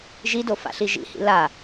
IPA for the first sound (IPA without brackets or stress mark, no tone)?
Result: ʒ